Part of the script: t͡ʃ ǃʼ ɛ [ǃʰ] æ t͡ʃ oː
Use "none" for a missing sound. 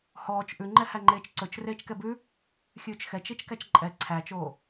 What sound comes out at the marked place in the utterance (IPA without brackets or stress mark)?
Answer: ǀʰ